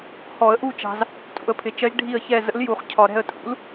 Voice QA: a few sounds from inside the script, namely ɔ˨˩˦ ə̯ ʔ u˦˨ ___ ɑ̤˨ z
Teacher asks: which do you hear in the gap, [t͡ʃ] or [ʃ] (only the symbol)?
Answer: t͡ʃ